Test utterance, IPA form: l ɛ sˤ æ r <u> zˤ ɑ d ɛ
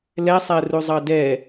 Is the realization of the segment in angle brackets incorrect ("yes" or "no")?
no